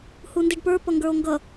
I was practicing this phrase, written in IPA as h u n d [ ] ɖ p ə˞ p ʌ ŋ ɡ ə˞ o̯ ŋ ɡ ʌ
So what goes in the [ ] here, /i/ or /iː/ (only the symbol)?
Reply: i